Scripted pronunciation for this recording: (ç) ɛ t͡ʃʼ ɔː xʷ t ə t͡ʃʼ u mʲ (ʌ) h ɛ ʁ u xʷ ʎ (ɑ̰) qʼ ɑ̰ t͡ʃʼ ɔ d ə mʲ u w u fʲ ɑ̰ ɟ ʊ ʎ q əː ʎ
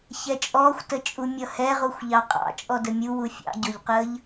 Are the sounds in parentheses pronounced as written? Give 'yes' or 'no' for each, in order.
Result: yes, yes, no

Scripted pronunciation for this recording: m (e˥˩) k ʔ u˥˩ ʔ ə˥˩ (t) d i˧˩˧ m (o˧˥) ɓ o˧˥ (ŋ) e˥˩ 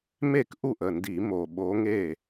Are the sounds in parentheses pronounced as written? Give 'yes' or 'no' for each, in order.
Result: yes, no, no, yes

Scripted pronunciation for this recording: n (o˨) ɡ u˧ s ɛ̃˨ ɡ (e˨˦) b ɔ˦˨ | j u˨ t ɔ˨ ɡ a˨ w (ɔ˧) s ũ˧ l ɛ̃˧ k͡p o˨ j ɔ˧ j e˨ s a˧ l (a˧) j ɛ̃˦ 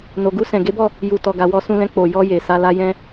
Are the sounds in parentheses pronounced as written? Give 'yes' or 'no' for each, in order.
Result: yes, yes, yes, yes

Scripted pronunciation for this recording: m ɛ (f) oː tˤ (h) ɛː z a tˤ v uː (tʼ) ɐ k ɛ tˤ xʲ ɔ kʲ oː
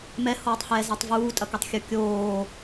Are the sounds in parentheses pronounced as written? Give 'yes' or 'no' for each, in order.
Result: no, yes, yes

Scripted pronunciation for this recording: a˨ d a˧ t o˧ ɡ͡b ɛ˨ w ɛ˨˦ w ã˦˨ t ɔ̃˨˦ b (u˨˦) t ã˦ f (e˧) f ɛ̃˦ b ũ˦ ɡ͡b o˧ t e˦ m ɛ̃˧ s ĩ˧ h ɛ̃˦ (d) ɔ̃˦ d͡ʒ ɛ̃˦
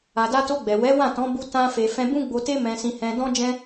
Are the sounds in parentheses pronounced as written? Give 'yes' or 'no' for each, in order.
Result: no, yes, yes

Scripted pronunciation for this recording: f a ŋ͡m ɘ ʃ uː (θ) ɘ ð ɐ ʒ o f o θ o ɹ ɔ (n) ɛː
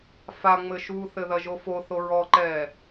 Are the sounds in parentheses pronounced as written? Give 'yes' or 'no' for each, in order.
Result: yes, no

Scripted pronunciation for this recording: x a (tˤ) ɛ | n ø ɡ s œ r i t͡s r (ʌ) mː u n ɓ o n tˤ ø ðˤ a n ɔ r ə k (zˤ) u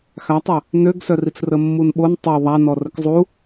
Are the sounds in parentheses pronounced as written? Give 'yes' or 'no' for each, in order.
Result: yes, no, yes

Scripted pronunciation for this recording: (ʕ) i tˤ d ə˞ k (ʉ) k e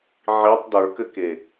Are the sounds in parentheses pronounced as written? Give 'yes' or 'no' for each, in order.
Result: yes, no

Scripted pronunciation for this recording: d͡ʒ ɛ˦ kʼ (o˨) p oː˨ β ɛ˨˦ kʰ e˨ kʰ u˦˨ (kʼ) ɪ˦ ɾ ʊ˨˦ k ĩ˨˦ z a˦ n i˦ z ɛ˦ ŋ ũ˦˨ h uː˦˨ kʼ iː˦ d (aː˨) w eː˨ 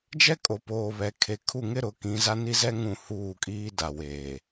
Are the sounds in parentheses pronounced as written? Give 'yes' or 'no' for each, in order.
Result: yes, no, no

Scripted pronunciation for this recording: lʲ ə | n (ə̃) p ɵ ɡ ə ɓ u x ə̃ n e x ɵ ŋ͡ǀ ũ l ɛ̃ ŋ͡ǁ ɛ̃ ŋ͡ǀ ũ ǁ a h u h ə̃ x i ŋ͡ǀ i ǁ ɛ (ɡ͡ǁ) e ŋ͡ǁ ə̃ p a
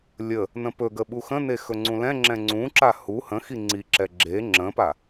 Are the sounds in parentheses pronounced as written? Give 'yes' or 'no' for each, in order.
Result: yes, yes

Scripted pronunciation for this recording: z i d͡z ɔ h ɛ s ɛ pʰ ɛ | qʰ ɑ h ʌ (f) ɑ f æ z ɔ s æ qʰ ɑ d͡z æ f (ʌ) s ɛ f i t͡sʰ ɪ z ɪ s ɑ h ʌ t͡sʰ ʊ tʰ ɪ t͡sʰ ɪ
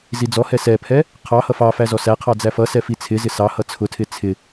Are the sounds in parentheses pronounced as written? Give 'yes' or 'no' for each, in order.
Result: yes, yes

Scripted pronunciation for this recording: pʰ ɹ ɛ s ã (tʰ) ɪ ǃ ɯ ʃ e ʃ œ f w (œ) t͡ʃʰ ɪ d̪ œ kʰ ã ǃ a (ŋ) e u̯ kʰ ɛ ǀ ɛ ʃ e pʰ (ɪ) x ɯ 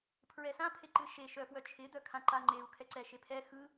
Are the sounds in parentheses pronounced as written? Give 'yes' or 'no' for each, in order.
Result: no, yes, no, no

